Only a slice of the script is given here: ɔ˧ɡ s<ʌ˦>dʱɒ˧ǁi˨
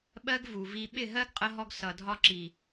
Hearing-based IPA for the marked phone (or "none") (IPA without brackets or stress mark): ʌ˨